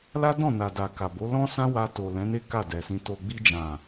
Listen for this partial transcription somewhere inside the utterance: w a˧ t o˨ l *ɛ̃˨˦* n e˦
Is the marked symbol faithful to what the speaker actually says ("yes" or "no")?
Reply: yes